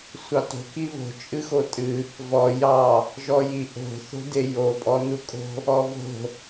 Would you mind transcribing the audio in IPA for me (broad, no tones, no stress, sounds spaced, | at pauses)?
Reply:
sʷ ɑ t o̤ k i β o̤ t͡ʃʼ ɨ x o tʼ ɨ | v ɔ j ɑ | ʒ ɔ j i ʔ o̤ θ o̤ d e j o pʼ ɔ n u kʼ o̤ | ɔ v o̤